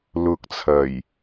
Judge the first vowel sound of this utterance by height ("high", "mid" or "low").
high